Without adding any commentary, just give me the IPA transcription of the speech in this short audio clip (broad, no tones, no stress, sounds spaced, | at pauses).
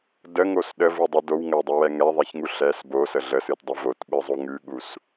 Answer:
d ə ŋ o s ɗ ə v u dˤ u d o w ŋ ə w dˤ u w ɛ ŋ ɛ ðˤ ɛ ç ŋ u ɬ ɛ s b o s ə ɮ ə s ɨ t dˤ u v o t ɓ ɨ zˤ o ŋ ʉ ɠ u s